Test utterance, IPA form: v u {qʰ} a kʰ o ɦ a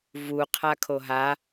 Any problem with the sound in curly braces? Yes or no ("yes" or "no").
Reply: no